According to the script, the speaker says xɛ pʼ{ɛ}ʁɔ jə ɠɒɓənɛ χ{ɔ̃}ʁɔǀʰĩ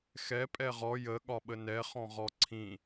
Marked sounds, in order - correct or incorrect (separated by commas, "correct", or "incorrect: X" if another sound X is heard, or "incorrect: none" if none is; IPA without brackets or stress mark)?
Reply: correct, correct